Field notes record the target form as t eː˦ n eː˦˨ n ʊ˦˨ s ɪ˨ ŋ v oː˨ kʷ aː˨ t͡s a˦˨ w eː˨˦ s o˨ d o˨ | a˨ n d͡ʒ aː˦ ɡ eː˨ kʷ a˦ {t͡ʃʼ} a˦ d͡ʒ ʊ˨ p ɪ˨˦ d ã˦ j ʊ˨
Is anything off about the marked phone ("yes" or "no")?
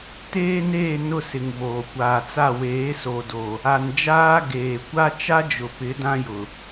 yes